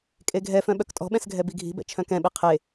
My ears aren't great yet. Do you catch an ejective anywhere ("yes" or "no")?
yes